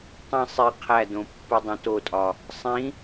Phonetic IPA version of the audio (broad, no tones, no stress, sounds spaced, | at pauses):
tˤ ĩ sˤ i qʰ æ d õ pː u dˤ õ t o tʼ ɒ | sˤ ĩ